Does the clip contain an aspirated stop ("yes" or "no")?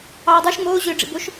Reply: no